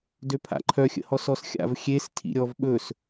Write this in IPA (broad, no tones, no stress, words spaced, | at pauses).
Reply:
døpʰa̰ǃʰœ xʲə̰hɔsɔsxʲa̰v xʲes tʰḭɾʲɔv ɓɵs